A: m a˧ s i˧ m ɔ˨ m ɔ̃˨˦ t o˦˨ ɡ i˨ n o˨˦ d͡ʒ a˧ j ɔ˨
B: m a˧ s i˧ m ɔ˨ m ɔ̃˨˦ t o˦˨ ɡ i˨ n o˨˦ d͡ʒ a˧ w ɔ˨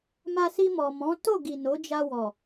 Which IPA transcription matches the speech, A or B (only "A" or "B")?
B